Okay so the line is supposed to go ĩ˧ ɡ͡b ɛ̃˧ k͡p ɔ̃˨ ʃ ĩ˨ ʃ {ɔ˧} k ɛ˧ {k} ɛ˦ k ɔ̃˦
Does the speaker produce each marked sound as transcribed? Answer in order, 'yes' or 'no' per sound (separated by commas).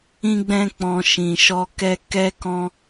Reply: yes, yes